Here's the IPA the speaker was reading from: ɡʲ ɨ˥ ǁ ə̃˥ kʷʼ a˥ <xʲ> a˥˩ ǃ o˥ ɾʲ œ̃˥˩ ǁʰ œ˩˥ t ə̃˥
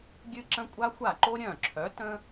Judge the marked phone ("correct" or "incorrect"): incorrect